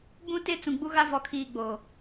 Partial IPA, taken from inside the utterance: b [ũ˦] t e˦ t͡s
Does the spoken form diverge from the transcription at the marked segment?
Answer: no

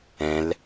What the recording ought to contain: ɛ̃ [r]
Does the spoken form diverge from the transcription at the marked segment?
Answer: yes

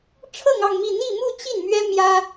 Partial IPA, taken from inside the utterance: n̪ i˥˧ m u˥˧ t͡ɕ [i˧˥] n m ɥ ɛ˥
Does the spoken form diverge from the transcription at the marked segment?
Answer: yes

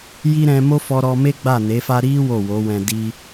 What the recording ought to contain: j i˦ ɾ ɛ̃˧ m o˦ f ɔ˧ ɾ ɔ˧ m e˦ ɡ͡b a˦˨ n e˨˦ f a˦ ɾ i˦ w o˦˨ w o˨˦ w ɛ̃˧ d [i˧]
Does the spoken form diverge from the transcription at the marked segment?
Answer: yes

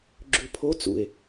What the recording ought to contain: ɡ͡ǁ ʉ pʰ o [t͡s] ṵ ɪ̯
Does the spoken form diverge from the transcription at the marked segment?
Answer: no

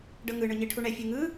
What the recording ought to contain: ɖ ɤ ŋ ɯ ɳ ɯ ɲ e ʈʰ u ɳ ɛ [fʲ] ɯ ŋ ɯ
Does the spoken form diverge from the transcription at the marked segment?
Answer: no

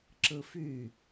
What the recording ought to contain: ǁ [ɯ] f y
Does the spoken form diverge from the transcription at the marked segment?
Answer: no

